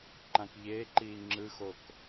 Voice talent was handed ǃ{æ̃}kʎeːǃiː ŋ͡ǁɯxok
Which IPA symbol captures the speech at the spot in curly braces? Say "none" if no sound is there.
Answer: ã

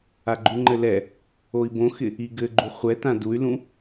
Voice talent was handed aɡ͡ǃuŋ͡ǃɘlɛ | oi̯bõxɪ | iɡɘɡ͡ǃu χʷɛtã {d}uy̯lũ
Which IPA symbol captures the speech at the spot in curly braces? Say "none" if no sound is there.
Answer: d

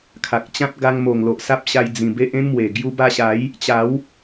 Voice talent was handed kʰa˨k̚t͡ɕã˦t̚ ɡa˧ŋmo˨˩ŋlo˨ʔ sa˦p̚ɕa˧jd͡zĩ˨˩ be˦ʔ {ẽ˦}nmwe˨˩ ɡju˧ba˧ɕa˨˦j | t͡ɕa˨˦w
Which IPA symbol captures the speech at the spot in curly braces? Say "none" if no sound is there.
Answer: ẽ˦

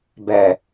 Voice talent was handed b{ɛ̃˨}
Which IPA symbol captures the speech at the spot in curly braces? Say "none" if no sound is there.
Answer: ɛ˨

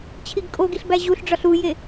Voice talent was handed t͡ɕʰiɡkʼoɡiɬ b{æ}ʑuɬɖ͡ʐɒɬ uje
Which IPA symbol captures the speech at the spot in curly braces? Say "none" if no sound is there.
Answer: æ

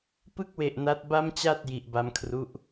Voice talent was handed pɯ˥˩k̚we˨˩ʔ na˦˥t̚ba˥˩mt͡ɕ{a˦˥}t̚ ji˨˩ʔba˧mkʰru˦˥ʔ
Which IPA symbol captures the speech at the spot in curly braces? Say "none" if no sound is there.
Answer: a˥˩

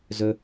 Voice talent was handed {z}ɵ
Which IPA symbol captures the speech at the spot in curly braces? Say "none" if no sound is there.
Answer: z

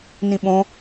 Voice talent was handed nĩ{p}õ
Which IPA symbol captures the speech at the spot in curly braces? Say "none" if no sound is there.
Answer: ɓ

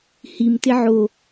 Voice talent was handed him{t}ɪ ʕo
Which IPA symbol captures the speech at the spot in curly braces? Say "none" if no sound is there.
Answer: t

